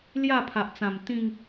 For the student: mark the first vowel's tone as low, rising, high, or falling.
falling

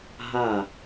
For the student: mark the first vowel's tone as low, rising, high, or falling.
falling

